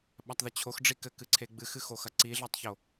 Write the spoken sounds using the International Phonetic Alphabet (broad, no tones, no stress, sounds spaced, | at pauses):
ɓ a tˤ ð ɘ t͡ɕʰ o x ɖ͡ʐ i k ɘ k ɨ ǀʰ e ɡ͡b ɨ x ɨ x o x ɐ ǀ i ɮ ɛ tˤ ç o